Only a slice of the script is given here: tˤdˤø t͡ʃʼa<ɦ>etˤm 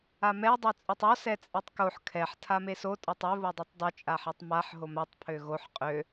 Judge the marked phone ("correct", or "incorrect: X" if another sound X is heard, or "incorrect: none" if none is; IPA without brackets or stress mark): incorrect: ħ